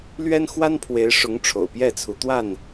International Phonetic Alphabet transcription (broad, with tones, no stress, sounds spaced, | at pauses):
l ɥ ɛ˦ n x w a˦ n pʰ w e˨˦ ɪ̯ ʂ ʊ˨˦ ŋ ʈ͡ʂʰ o̰˨˩ ʊ̯ p j ɛ˥˨ t͡sʰ u˨˦ t̪ w a˥˨ n